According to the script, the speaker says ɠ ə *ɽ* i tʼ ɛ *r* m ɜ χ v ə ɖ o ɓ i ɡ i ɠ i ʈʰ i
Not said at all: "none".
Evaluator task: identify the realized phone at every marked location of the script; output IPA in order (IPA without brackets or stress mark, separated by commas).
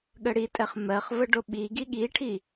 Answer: ɽ, χ